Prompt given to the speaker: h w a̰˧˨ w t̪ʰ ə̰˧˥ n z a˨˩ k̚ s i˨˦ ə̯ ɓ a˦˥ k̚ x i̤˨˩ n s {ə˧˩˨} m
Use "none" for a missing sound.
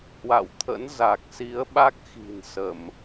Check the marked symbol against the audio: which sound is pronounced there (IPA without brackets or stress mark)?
ə˧˩˨